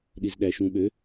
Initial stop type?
implosive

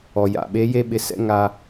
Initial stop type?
implosive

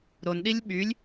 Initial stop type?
implosive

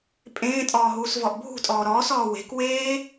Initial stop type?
ejective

